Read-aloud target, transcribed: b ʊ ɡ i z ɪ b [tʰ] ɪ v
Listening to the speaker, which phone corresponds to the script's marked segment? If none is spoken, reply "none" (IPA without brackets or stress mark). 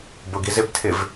tʰ